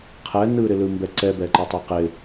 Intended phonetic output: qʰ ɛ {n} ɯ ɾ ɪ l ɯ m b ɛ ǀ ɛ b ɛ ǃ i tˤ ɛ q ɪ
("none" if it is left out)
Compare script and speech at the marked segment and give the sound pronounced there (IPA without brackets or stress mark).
n